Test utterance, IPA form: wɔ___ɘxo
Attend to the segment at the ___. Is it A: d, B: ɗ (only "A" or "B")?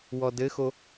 A